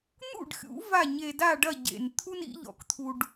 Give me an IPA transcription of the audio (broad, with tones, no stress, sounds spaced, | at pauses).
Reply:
n̪ ṵ˥˩ ɖ xʲ ṵ˩˥ v a˥˩ ɲ e˧ d a˥˩ ɖ ɐ˥˩ ɟ ḛ˩ n t̪ʰ u˥ n ḭ˩˥ ʎ ɔ̰˩˥ k t̪ʰ u˧ ɖ